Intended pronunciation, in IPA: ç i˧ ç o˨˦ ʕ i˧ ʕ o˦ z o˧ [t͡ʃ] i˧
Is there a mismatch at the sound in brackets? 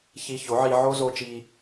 no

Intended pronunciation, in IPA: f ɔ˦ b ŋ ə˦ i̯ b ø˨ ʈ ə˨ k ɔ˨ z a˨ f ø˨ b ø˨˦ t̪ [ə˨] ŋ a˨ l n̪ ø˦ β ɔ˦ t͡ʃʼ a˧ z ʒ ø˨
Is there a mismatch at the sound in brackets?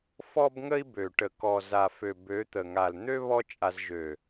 no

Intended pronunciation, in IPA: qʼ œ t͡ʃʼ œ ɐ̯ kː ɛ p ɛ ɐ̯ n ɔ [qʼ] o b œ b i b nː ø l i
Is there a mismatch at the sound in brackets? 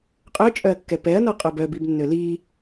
no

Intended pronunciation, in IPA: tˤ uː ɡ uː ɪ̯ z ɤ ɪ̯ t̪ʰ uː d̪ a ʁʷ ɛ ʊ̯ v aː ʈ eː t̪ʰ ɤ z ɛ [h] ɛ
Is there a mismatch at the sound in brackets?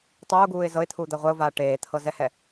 no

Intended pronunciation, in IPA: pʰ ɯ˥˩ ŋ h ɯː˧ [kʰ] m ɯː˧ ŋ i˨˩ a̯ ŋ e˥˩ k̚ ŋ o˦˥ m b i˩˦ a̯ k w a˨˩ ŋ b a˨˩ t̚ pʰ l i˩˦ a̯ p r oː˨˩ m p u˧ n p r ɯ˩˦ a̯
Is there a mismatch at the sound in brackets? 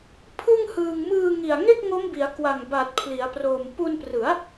yes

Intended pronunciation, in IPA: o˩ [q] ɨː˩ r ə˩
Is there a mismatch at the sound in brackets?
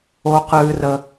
no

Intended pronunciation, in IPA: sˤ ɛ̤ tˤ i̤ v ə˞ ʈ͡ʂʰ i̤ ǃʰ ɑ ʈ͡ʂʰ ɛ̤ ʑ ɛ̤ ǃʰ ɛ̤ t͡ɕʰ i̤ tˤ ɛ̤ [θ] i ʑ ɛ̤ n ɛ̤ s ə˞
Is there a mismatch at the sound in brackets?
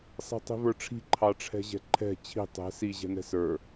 yes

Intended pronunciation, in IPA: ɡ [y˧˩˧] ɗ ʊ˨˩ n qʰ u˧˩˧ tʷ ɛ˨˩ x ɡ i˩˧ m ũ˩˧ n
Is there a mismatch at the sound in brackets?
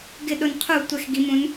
yes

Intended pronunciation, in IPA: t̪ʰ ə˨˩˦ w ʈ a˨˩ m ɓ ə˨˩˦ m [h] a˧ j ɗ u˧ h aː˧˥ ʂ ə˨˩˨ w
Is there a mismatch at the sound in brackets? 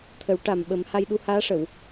no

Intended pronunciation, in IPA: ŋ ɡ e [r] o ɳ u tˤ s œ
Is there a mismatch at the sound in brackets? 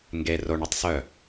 no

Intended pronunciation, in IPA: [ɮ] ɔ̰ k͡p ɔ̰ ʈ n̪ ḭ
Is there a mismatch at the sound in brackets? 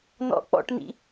yes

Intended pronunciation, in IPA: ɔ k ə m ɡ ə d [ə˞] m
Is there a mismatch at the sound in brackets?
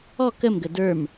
no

